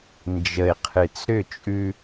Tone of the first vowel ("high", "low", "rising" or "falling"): low